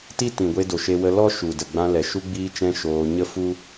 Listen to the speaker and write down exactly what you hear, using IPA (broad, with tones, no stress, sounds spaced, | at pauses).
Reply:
t i˦ t ĩ˨ ɡʷ e˧ d o˨ ʃ e˧ w ə˧ l ɔ˦ ʃ u˨ d ə˨ ɡ͡b ã˧ l ɛ˨ ʃ u˧ ɡ͡b iː˧ t͡ʃ ɛ̃˧ ʃ oː˧ ɲ ə˦ f u˦